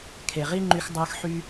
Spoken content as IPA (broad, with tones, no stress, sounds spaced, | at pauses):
kʰ e˩ ʁ i˥ ŋ͡ǃ y˧ x dˤ əː˧ x ħ y˧